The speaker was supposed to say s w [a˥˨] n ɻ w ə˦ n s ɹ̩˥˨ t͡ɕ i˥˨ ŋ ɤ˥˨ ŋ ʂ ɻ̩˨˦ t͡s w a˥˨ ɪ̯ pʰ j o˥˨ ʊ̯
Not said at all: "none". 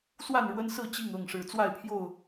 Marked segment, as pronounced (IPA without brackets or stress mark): a˥˨